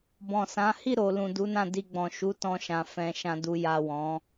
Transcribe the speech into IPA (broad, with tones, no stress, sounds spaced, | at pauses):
b ɔ̃˨ s ã˨˦ h i˦˨ ɾ o˨ l ũ˨ d u˨˦ n ã˦˨ d i˧ ɡ͡b ɔ̃˨ ʃ u˨˦ t ɔ̃˧ ʃ ã˨ f ɛ̃˨ ʃ ã˨ d u˨ j a˨ w ɔ̃˨˦